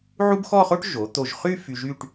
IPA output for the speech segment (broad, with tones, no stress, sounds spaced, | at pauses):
ʕ u˥ b x ɔ˥˧ χ o˥ ʈ ʒ o˩˧ t̪ o˧˩ ʒ χ y˥˧ f y˧ ʒ y˥˧ ʈ